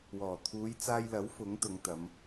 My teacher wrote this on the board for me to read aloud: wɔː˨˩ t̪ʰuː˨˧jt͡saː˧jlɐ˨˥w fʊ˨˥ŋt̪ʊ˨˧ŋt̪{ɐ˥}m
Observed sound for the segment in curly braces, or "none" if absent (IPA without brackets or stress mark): ɐ˨˧